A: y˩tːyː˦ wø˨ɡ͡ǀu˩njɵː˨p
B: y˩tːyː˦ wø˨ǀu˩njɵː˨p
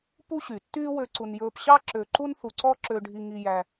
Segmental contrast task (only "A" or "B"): B